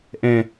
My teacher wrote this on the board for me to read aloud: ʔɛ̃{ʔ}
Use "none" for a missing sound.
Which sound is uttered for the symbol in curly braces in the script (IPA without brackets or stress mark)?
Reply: none